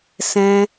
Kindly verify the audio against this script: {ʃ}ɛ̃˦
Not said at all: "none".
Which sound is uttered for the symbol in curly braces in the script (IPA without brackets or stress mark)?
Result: s